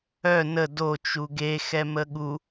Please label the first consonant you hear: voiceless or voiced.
voiced